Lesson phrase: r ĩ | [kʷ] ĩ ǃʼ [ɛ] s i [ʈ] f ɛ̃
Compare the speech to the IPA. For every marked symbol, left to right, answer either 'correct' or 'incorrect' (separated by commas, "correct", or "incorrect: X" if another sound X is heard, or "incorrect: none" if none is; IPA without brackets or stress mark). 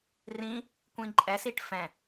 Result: correct, correct, correct